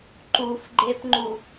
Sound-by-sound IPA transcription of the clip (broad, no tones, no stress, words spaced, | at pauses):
ǃufɡ͡ǃepŋ͡ǃu